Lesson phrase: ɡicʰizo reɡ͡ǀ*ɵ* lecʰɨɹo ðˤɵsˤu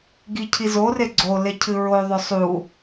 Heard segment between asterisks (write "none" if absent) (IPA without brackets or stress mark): o